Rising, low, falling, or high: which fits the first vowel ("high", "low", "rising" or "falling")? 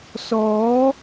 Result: rising